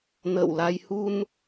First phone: n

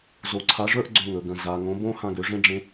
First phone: z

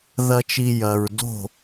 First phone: ð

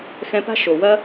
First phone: x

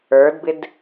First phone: ə˞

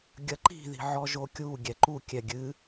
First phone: ɡʲ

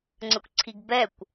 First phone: ŋ͡ǀ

